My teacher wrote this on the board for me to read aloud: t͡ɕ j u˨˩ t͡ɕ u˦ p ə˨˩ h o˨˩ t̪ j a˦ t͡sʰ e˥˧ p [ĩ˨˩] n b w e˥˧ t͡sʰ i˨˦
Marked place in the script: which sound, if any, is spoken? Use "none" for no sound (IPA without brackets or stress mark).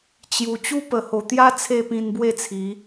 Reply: ĩ˧